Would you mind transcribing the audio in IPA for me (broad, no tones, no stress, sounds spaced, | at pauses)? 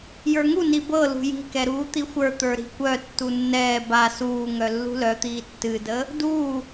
j ə˞ ŋ u n i b ɤ l ṳ j i̤ k ɛ ɾ uː t̪ i xʷ ə˞ t̪ ə˞ ɾ i̤ kʷ œ tː u nː ɛː b a s uː ŋ œ lː ṳ l œ t̪ iː tː ɨ d ə | d uː